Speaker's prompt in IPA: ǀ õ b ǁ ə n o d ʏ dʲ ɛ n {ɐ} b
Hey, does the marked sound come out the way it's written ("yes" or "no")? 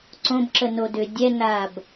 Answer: no